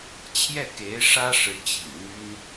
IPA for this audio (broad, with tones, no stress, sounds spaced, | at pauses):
t͡ɕʰ j ɛ˥˩ k e˧˥ ɪ̯ ʂ ä˥ ʂ ɻ̩˧˥ t͡ɕ ḭ˨˩ ŋ n̪ y˥ n